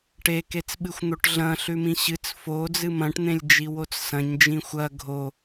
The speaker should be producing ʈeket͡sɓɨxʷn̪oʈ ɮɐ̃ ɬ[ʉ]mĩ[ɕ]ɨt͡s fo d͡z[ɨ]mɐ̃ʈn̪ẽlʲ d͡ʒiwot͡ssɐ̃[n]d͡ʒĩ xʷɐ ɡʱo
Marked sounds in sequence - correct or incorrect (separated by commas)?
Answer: correct, correct, correct, incorrect